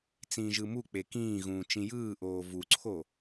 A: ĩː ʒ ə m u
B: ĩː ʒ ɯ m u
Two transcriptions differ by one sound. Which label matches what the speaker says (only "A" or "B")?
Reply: B